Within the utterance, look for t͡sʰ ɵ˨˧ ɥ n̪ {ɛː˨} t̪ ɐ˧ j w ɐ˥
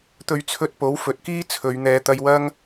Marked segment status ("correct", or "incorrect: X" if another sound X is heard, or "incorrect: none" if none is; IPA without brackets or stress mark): incorrect: ɛː˨˧